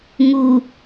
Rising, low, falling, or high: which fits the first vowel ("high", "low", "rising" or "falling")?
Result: low